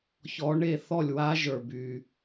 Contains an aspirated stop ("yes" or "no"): no